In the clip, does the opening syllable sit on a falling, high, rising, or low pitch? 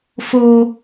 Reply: high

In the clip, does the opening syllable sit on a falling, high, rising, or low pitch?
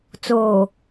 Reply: low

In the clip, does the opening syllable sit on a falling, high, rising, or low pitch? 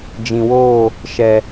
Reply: low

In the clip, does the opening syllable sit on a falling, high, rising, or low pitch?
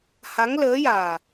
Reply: rising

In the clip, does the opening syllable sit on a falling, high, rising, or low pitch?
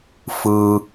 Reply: low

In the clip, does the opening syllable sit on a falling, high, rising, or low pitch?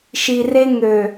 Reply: low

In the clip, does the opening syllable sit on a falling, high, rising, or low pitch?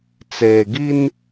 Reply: low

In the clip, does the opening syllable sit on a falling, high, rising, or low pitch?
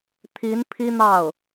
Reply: rising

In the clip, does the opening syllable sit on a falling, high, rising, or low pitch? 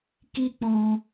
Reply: high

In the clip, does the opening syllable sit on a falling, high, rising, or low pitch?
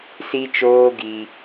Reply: high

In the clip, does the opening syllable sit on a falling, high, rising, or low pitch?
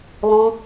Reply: high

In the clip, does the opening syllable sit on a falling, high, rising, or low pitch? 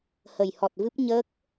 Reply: low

